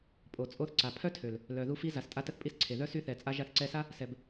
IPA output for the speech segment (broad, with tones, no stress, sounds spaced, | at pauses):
pʼ o˨ t͡sʼ o˧ θ ǀ a˨ pʰ œ˦ tʰ ø˨ l | l œ˨ ð u˧ f i˧ z a˨ s tʼ a˧ t ə˧ θ pʼ i˧ s ǀʰ e˨ ð œ˦ s y˧ θ ɛ˨ t͡sʼ a˧ ʒ a˧ θ ǀ ɛ˧ s a˦ | s ɛ˨ b